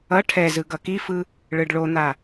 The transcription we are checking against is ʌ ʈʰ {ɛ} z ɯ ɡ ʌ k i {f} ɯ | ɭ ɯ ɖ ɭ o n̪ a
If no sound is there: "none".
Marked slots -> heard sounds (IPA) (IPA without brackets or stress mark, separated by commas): ɛ, f